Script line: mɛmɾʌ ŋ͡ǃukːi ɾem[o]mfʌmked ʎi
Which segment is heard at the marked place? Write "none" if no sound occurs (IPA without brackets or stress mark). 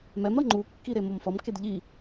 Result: o